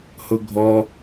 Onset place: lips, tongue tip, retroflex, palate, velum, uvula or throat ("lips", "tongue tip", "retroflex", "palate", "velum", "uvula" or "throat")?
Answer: throat